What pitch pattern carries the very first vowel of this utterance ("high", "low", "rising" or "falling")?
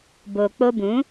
low